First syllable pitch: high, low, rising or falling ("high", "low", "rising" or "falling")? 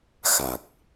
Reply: low